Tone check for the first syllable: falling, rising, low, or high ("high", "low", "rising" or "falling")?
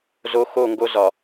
low